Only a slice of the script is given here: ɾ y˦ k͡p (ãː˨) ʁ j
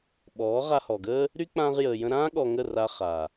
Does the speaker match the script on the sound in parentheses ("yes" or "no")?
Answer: no